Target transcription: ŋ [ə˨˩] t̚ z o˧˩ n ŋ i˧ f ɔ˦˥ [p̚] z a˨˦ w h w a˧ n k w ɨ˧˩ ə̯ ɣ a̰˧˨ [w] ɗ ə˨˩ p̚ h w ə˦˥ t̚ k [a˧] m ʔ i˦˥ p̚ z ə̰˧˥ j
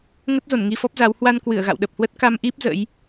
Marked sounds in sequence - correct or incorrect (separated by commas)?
incorrect, correct, correct, correct